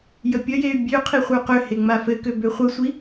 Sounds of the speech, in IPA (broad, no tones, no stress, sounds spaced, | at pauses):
j ə pʲ ə j e y̯ bʲ ø qʰ i χʷ ə˞ q ø h e ŋ͡m a f ɘ k ø b ø χʷ ə sʷ i